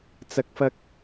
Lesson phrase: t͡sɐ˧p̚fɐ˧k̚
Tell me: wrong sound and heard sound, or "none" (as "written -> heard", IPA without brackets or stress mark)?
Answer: p̚ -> k̚